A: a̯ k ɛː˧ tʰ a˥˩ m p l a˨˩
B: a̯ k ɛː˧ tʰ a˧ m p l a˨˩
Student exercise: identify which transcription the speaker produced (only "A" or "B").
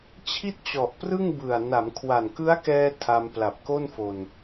B